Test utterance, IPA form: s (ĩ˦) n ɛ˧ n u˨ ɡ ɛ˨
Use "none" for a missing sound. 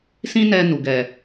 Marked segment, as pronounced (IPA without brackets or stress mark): ĩ˦